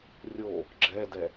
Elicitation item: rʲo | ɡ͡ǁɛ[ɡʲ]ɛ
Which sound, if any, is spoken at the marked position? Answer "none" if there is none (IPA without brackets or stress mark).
d